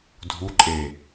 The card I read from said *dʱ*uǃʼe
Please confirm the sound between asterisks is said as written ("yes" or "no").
yes